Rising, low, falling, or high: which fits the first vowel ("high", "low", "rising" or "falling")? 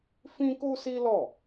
high